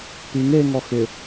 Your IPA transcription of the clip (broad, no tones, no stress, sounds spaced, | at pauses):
p i ŋ e ŋ ɔ x ɪ